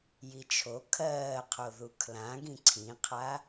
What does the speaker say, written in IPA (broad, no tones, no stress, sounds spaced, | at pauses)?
j i t͡ʃʰ o kʰ ɜː qʰ o ð u kʰ l ã ɡ ĩ ǀʰ ĩ qʰ a